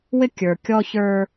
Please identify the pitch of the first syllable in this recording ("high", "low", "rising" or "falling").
high